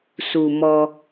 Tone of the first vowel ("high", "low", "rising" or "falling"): low